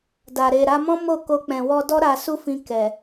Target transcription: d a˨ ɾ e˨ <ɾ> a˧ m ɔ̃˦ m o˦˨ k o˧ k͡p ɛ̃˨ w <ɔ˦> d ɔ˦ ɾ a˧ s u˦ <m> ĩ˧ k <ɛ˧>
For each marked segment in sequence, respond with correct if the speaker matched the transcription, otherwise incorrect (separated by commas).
correct, incorrect, incorrect, incorrect